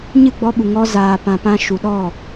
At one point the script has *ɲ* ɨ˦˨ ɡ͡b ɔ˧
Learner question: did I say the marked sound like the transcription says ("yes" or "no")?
yes